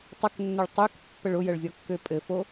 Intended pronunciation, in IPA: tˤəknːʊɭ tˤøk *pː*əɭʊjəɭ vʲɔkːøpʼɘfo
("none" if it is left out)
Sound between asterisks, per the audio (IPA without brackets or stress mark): pː